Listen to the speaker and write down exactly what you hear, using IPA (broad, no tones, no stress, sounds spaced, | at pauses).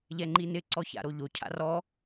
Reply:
ʎ ɛ ŋ͡ǃ i n ɪ ǀ ɔ ç a̰ ɾ o ʎ o cʰ a̰ r ɔ